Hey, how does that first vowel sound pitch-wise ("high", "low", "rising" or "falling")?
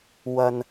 low